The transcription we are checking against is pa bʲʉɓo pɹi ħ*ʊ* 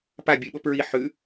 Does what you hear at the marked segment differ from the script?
yes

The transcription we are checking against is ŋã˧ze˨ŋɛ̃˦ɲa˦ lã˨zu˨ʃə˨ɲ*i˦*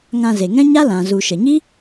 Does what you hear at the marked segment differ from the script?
no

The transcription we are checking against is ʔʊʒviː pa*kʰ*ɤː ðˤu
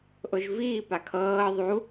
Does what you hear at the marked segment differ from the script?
no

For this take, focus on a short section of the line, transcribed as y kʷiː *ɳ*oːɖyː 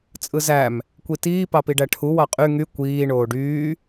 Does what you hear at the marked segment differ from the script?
no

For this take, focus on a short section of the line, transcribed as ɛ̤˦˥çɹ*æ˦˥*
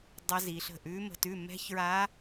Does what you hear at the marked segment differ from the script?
yes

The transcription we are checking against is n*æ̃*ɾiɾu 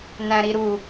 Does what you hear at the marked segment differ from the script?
no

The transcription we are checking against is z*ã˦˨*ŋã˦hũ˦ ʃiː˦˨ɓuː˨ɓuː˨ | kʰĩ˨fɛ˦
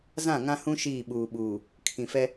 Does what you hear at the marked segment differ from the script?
no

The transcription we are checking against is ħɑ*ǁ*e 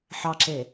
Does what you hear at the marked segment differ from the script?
no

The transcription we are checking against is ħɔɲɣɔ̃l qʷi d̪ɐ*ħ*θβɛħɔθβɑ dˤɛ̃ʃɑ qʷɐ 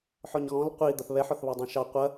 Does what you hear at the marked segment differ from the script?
yes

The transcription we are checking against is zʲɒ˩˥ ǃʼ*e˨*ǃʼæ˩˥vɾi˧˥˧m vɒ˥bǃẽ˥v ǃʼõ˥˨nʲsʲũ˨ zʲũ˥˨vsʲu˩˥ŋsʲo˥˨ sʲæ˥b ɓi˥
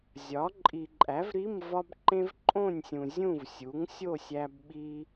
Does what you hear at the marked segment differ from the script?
yes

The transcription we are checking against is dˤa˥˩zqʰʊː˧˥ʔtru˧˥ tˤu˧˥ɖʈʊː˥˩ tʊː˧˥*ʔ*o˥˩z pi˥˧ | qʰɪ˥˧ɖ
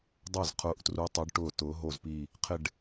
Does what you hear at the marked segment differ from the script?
yes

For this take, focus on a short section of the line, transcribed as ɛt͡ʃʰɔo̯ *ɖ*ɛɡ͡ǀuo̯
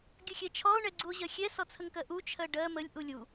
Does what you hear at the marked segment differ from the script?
yes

